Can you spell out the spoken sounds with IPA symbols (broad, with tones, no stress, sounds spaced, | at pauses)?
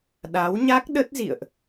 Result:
ɗ a˨˦ w ɲ a˦˥ k̚ ɗ ə˦˥ t̚ z ḭ˧˨ ə̯ ʔ